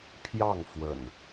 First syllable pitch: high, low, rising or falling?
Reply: falling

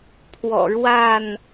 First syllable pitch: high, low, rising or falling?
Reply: low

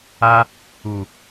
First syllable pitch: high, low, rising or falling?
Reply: high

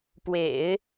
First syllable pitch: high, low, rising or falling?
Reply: low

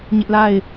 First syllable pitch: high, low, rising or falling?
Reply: high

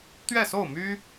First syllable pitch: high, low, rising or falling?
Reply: falling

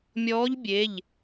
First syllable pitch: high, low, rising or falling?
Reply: rising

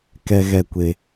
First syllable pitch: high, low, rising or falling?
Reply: high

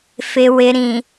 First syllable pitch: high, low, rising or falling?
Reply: low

